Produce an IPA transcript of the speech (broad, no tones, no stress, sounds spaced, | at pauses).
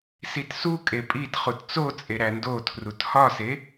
s i t s u kʼ e pʼ i t χ u t t͡s o t͡sʼ e ɾ æ n d o tʰ r u t h ɒ s e